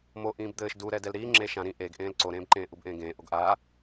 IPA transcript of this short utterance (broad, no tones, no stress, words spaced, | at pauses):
moʔĩːb d̪ɘːʃ duɾɛ dɛlɾiː ŋ͡ǁeːʃã ɾĩ ʔeɡʔẽːl ǀoɾẽːbǃẽː ʔubʔẽːɡẽː ʔoɡʔa